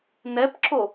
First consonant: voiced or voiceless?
voiced